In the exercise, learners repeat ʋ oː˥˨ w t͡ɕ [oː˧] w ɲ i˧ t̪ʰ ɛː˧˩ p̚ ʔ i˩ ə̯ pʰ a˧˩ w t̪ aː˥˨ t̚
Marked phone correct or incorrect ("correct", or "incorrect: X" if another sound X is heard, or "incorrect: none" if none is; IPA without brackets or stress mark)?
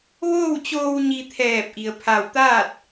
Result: correct